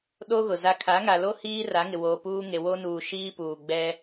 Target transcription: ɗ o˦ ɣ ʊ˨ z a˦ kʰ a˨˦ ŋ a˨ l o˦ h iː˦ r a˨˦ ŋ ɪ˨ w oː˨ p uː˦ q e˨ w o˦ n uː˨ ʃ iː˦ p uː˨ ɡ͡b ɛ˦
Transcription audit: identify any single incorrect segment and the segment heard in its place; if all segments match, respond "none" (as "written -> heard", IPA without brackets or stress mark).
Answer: q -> ŋ